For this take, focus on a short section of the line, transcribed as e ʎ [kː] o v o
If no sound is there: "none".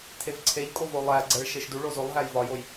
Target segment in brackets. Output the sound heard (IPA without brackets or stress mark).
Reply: kʼ